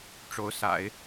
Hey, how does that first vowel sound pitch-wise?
rising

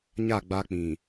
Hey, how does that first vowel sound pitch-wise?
falling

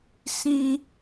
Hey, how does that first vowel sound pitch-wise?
high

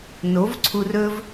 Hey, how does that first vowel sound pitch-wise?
rising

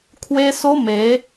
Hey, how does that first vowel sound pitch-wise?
high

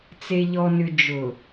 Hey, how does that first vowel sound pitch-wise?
low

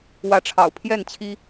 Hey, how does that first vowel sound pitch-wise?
rising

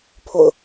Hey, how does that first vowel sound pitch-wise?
low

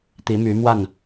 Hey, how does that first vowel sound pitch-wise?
rising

